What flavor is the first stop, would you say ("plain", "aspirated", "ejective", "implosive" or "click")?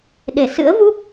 implosive